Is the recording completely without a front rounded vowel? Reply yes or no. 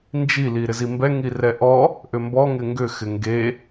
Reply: no